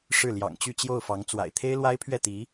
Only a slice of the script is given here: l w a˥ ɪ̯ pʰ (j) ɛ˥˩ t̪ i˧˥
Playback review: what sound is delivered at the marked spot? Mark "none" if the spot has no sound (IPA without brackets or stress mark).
ɥ